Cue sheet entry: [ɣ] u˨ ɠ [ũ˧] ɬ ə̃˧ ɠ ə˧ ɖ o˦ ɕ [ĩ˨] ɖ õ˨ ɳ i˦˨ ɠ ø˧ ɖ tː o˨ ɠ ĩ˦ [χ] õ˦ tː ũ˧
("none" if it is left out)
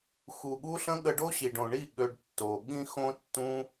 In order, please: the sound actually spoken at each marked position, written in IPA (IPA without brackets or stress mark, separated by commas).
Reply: x, u˧, i˨, x